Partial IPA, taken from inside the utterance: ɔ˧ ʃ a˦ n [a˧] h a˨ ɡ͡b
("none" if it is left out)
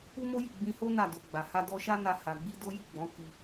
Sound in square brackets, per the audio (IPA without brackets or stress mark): a˧